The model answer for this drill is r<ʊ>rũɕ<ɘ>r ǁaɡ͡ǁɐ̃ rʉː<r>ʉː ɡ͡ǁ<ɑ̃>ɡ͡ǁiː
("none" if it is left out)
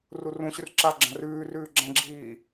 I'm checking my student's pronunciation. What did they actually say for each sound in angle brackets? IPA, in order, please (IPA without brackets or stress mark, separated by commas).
u, ʉ, r, ɐ̃